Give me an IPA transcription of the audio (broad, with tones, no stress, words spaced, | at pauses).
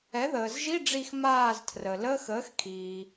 ɛ˩˥ðəː˩zʒi˧˥˧ɖ͡ʐi˧˩x maː˧˩z tʰrə˩ləː˧˥˧x əː˩˥xkʰiː˩